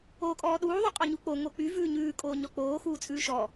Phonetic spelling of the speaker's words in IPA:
oː kʼ ɔː ɗ uː ðˤ o qʼ ɔ ɲ u k͡p o ŋ o k͡p y v ʉː ɲ ʉː kʼ oː ɲ ɔ k͡p oː x uː t͡sʼ ʉː ʃ ɔ

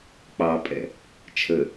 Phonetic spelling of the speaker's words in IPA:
k͡p ɑ pʼ ɛ̰ | t͡ʃʰ ə

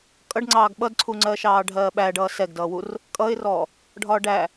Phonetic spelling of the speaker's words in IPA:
kʼ ʌ ɖ ŋ͡ǀ ɑː ɡ ɓ ʌ d ǀʰ u ŋ͡ǀ ɜ ʃ ɑː ɖʱ ɜː ɓ æ ɖ ʌː s ɛ ɡ d ʌː w u r | kʼ ʌ ɪ̯ r ɔ | ɖʱ ɒː ɖ æ

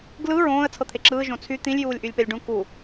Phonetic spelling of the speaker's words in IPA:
ɡ l ɯ ɹ õː ə̯ t͡sʰ ɤ t̪ʰ e ǁ ɯː ʒ õ t͡sʰ y t̪ ĩ lʲ j uː lʲ ʔ y lʲ p e lʲ ɖ ũ k u

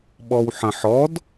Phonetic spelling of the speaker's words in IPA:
ɓ ɔ w ħ ə̃ ħ ɔ d

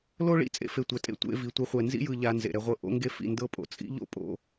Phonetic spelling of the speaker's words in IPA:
l o˦ ɭ ḭ˦ t͡sʼ ḛ˧ f e˨ tʷ ɛ˨ tʼ ḛ˦ tʷ ḛ˧ v i˨ tʷ e˧ χʷ ɛ˨ n z ḭ˦ j ɯ˨ ʎ a˧ n z ḛ˨ ɾ ɛ˧ ʁʷ ɤ˦ ʔ o̰˦ ŋ ɡ e˦ f ḭ˦˨ n d ɤ˧ pʼ o̰˨ t͡sʼ ḭ˦ ʎ o̰˦ pʼ o̰˦

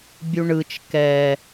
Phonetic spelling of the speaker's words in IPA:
bʲ u ɳ ɯ t͡ʃ k ɛ

